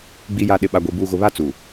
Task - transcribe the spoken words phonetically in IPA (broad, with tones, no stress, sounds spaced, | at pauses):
ɡ͡b i˨ j a˨ ɗ ɪ˨ ɓ a˨ ɡʷ i˨ b uː˨ ɣ ʊ˨ β a˦ t͡s uː˨